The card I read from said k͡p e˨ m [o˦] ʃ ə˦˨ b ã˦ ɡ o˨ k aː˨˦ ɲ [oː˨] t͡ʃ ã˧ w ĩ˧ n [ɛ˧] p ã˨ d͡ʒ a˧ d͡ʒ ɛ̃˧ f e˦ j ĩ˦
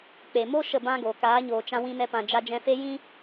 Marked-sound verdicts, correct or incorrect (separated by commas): correct, correct, correct